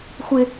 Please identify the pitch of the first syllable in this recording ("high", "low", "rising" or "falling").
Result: high